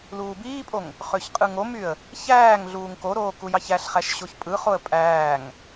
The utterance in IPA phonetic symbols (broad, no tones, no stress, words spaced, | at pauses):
luːbiːpʼoŋ | χøçqʼɯŋomyə̯ | çæːŋ ɮuːŋkoɾoː kujɑçæɬχæʃ ɕoçpʼɯχoə̯ pʼæːŋ